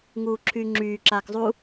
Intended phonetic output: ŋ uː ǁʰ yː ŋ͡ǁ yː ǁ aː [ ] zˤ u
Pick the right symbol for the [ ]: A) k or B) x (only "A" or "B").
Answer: A